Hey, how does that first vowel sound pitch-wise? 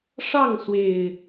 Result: falling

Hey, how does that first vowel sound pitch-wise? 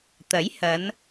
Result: rising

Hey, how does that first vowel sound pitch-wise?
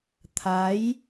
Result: rising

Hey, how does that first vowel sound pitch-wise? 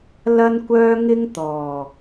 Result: high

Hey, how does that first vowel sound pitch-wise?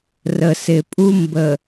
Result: low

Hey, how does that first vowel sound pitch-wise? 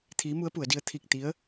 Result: rising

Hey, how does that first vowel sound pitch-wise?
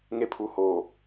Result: high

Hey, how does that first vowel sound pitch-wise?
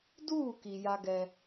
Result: falling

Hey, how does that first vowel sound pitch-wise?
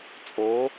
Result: rising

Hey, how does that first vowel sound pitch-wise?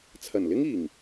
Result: low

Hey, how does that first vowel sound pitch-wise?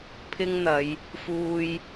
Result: high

